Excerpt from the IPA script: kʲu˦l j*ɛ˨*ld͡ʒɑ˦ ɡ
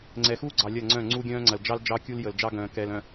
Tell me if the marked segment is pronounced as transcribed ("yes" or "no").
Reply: no